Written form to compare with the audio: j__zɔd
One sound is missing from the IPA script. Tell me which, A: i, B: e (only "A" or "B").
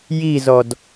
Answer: A